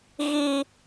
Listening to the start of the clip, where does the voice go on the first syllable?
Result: high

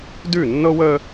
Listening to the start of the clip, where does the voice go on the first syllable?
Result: falling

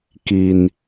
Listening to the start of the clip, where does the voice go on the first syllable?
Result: low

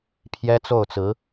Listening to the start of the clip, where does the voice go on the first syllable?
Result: high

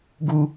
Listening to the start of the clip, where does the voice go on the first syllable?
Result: low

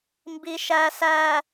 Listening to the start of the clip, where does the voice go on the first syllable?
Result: low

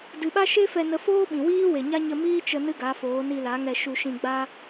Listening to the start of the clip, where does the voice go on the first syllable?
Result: low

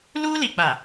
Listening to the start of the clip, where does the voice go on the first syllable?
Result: high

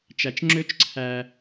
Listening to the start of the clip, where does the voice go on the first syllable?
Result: low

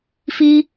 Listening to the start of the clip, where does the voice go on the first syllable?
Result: high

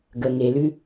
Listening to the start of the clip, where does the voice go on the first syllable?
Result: low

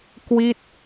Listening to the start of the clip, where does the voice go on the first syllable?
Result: falling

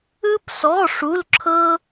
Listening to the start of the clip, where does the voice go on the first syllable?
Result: high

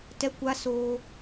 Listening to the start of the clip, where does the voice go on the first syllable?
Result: high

